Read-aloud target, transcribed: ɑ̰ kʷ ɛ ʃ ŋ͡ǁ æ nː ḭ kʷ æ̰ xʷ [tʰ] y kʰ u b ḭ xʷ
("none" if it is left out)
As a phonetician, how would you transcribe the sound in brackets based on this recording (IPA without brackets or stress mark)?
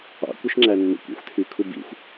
tʰ